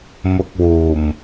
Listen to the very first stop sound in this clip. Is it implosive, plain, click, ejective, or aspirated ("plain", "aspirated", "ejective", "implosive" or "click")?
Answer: plain